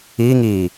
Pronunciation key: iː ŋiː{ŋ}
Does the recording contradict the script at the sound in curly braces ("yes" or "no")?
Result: yes